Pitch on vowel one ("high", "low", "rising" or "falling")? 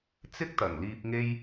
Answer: high